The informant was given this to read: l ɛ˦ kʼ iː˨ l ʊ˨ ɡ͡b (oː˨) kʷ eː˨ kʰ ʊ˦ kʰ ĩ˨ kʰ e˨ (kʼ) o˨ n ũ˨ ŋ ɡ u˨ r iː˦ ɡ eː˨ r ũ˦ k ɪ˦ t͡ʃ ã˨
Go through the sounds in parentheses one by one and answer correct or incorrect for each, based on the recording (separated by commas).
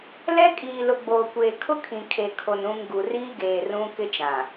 correct, incorrect